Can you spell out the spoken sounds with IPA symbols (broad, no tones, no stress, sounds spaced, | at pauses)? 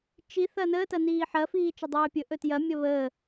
t͡ʃ i θ ɐ n əː t ɐ n iː ħ ɐ f iː t͡ʃ ə dˤ øː pʲ ɵ ʔ ɵ t j ɐ mʲ ɐ β əː